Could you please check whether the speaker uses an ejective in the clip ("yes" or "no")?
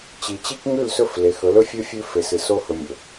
no